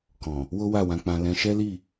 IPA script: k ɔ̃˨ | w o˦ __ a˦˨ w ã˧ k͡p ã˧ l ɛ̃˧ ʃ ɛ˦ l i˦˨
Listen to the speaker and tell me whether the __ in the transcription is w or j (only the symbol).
w